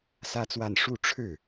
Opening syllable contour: high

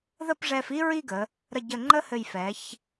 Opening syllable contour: falling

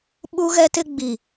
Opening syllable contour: high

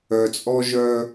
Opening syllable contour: low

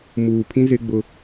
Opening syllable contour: low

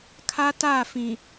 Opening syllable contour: high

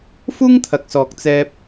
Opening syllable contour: high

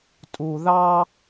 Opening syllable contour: low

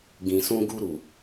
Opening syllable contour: low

